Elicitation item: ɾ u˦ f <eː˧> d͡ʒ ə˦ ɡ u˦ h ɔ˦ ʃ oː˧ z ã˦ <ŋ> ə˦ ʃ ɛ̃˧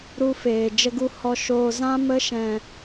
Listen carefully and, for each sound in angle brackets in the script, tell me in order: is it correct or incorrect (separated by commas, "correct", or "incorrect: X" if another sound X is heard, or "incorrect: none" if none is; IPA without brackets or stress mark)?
correct, incorrect: m